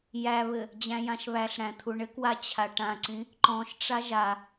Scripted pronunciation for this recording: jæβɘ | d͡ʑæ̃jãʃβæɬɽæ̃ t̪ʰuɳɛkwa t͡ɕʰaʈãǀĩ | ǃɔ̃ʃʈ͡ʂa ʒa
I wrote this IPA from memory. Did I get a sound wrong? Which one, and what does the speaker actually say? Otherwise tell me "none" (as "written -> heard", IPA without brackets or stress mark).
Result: ɛ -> ɘ